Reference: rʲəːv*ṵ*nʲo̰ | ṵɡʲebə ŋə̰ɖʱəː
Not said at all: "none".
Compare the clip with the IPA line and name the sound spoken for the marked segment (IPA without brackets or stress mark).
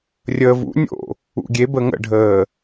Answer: ṵ